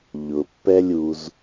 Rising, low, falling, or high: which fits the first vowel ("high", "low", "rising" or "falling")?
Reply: low